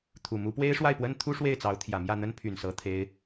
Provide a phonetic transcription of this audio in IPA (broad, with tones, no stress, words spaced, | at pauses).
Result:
t̪ʰu˨˩mu˧˥ pwe˥ɪ̯ʂwa˥˩ɪ̯pwə˥n t̪ʰu˥ʂwe˥˩ɪ̯t͡sɑ˧˥ʊ̯ t̪ʰjä˨˩ mjä˥˩n̪ə˥n pʰy˨˩nsɤ˧˥ t̪ʰe˥ɪ̯